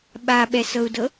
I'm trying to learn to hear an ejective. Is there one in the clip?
no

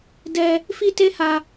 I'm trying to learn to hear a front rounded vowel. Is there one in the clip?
no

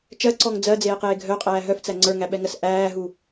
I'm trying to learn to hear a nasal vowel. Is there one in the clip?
no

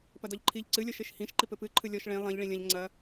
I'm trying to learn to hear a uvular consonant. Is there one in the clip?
no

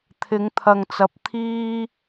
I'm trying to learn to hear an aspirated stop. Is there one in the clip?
yes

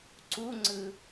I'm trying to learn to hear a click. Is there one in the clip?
yes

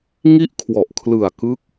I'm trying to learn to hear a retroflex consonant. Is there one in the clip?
no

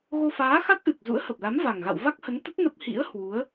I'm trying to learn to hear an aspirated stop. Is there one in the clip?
no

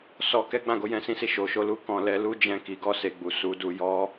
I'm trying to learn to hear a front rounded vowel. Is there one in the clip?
no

